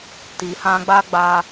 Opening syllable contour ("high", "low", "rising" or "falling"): low